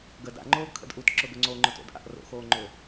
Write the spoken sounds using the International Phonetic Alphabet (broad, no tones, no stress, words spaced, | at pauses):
ɡə da̰ŋ͡ǃoːɡkʰə̰d ʔutǁʊɡʊ ŋ͡ǀoŋ͡ǃʊto̰dʔa̰ʔ ro̰xoːŋ͡ǃø